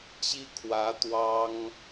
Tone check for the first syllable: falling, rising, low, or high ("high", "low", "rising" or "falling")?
high